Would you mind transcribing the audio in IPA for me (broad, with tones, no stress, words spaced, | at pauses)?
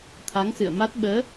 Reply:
t̪ʰa˨˦ŋsɨ̰˧˨ə̯ma˦˥t̚ ɓəː˨˦